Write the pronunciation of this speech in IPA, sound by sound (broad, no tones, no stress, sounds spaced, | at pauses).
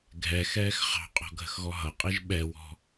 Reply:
ɡʱ ɛ x ɛː x χ ɑ̤ qʼ ɔ̤ ɡʱ ə̤ x ɣ ɔ ɦ ʌ qʼ i ʒ ɓ ɛ w ɔ̤